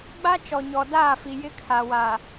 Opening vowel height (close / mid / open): open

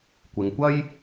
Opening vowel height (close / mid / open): close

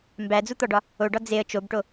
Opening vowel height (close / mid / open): open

